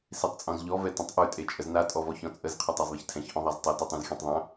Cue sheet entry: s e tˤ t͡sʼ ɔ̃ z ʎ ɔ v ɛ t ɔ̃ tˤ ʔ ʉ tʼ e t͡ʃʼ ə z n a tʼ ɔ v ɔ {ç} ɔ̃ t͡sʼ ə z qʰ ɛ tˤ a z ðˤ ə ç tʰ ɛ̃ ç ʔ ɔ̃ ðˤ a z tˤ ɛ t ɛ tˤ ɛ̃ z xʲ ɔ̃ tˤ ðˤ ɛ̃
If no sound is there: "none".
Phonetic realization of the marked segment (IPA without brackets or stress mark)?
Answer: ç